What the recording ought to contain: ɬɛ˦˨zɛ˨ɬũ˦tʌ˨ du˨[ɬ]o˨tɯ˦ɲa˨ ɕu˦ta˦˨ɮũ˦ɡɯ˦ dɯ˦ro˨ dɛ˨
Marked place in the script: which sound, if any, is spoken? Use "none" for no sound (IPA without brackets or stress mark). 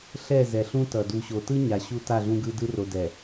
ɕ